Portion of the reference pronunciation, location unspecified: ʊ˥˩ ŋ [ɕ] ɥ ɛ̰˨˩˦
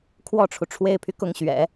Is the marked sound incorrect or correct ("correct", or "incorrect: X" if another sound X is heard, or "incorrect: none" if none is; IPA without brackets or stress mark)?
correct